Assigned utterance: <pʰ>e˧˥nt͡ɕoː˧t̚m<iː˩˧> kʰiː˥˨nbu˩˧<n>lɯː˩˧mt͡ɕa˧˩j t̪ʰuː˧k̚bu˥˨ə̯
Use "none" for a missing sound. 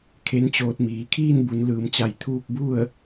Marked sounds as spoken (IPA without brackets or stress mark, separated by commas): kʰ, iː˩˧, n